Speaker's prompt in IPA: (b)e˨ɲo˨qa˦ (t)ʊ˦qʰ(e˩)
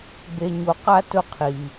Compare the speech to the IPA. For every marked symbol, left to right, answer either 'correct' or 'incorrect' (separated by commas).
correct, correct, incorrect